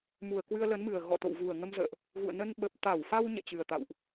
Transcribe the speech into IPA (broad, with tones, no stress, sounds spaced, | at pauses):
m u˨˩ ə̯ k w ɨ˧ ə̯ l ə˨˦ n m ɨ˨˩ ə̯ ɣ ɔ̰˧˨ t̪ o̰˧˨ w v u˨˩ ə̯ ŋ ə˧ m z ə̰ː˧˨ ʔ | ɣ ṵ˧˨ ə̯ n ə˧ n ɓ ə˨˩ p̚ t̪ a˧˩ w f a˧ w ɲ ɛ̰˧˨ t͡ɕ ɨ˨˩ ə̯ t̪ a̰˧˨ w ʔ